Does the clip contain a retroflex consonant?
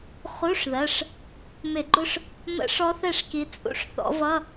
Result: yes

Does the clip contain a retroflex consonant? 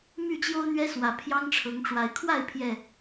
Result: yes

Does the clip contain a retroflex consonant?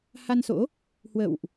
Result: no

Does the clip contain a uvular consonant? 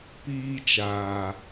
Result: no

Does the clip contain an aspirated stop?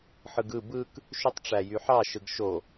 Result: no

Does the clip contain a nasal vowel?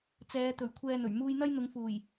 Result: no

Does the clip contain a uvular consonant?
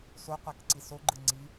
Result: yes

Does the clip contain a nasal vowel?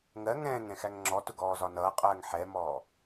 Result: yes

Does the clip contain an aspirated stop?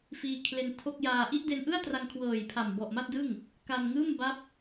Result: yes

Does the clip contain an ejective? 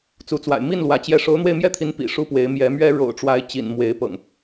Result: no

